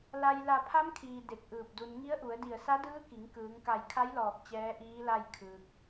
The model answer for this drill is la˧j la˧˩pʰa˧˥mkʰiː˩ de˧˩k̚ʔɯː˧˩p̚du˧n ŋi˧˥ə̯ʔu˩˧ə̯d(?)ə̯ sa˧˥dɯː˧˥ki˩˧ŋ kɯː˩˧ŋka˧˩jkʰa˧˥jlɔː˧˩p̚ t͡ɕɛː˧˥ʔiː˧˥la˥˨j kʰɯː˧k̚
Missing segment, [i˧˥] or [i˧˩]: i˧˩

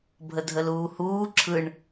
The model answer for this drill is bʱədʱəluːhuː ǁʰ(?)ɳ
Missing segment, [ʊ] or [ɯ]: ɯ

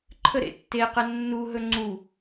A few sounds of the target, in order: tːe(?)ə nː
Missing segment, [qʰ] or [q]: q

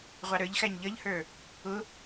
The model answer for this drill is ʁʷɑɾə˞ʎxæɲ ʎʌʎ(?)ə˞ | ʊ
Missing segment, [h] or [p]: h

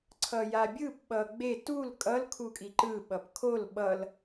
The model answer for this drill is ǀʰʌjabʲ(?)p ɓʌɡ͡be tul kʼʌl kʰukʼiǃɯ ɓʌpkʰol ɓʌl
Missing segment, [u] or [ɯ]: ɯ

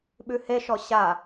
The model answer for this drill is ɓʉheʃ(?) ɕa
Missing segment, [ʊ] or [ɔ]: ɔ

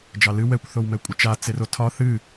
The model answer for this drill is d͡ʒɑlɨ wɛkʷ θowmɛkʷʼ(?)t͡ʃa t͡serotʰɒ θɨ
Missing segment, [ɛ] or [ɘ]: ɘ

